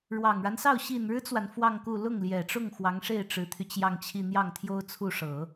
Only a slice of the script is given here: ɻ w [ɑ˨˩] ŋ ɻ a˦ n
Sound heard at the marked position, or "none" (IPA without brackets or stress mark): ɑ˨˩